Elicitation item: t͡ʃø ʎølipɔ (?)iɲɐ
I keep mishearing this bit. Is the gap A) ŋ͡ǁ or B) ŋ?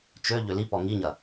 B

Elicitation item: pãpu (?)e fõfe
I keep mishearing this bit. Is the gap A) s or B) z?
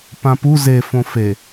B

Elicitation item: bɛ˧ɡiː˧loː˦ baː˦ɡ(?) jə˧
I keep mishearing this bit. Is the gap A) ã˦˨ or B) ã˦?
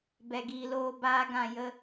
A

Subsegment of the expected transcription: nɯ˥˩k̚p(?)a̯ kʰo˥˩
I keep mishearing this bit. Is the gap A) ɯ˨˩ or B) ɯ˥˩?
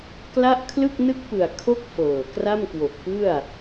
A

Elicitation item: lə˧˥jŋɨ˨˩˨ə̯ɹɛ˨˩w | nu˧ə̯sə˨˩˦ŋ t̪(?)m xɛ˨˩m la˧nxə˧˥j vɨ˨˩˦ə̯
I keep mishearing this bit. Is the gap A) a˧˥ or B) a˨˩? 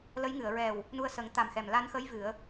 B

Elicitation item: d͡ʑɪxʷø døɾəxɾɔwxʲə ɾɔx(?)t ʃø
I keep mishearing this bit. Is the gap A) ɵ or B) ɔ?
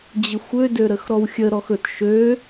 A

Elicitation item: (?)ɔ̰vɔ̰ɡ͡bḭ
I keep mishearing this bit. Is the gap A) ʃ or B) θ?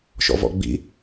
A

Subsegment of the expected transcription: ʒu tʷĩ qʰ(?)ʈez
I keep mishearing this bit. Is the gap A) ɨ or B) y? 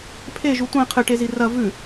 A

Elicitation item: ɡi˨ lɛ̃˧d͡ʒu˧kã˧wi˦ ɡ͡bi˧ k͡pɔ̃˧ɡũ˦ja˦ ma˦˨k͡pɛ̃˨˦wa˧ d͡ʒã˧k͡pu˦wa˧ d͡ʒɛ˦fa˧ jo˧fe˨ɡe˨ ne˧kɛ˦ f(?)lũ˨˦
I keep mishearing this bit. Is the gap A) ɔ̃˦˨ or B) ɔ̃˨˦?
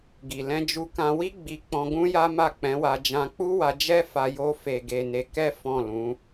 A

